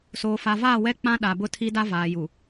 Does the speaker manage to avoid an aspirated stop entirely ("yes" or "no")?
no